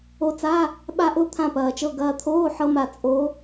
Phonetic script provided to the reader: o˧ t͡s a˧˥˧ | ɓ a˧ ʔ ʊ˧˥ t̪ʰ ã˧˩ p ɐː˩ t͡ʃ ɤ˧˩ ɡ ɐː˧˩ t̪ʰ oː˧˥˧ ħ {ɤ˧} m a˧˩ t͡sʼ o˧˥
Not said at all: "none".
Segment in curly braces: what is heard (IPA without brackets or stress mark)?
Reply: ɤ˧